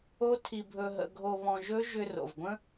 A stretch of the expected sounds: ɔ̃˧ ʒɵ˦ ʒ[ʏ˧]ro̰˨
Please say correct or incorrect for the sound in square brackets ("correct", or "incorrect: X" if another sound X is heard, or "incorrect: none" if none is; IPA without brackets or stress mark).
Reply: correct